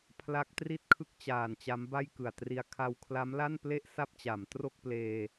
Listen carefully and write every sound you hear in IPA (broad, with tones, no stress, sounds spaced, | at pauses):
pʰ l a˦˥ k̚ t r i˥˩ t̚ kʰ ɯ˥˩ k̚ t͡ɕ aː˨˩ n t͡ɕ a˦˥ m b a˥˩ j k ɯ˨˩ a̯ t r i˧ a̯ kʰ a˧ w kʰ l a˦˥ m l a˥˩ n p l e˥˩ ʔ s a˥˩ p̚ t͡ɕ a˩˦ m t r o˥˩ k̚ p l eː˧